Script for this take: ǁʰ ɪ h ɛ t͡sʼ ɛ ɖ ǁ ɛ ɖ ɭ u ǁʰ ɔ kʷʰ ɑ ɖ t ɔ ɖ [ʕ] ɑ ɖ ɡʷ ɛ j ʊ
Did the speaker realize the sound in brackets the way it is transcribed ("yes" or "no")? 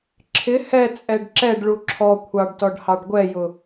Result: no